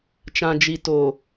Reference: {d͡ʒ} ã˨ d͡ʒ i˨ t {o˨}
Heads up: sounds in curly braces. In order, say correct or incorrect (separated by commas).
incorrect, correct